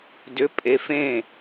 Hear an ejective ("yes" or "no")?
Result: yes